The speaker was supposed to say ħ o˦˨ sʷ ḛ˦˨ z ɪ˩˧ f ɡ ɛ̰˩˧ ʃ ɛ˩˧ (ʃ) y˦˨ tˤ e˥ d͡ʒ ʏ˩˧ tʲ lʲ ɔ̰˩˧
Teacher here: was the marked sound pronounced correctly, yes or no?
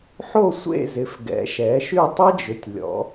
yes